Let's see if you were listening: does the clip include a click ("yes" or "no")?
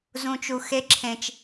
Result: yes